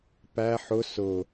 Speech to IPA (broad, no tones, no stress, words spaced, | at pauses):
pæ ħʊ sʊ